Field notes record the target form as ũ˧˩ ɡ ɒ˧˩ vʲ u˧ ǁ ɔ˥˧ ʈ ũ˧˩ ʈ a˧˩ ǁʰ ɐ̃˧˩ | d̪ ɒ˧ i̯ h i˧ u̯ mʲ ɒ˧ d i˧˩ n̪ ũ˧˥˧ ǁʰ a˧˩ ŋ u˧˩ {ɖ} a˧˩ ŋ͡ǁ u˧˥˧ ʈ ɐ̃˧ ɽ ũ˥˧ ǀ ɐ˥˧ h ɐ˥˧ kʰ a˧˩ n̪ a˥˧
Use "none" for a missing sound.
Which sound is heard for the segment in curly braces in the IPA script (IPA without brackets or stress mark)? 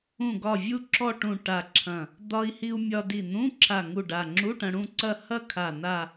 ɖ